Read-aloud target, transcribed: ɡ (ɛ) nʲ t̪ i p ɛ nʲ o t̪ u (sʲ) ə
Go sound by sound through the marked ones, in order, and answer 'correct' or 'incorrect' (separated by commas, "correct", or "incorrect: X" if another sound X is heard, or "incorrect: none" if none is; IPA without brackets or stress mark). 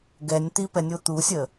correct, correct